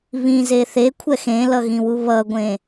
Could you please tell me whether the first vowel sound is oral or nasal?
nasal